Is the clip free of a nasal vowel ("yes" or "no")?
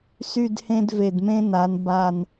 no